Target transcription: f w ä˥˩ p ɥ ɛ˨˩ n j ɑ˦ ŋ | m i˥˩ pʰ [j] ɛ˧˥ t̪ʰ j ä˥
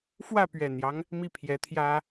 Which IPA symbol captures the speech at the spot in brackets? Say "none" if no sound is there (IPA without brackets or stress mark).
j